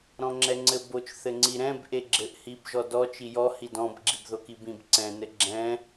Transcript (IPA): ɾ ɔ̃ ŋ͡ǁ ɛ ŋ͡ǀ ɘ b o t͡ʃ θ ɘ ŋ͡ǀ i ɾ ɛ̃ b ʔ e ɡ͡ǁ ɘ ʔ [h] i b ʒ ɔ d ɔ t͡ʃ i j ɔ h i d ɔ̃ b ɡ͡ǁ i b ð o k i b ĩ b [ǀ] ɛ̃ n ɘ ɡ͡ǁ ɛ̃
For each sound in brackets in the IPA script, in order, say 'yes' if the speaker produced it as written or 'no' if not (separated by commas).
yes, yes